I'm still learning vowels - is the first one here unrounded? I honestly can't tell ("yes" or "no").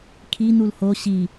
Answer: yes